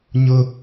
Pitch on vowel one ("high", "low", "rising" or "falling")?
high